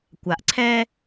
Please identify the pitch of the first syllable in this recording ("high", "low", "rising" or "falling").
low